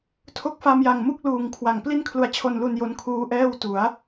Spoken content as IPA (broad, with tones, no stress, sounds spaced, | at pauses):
tʰ o˦˥ k̚ f a˧ m j a˨˩ ŋ m u˥˩ k̚ l uː˨˩ ŋ kʰ w a˨˩ ŋ p l i˥˩ n kʰ l u˧ a̯ t͡ɕʰ o˧ n l u˧ n j o˦˥ n kʰ uː˦˥ ʔ ɛː˥˩ w t u˩˦ a̯